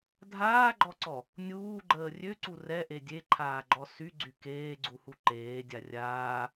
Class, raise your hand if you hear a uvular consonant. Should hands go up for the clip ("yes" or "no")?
no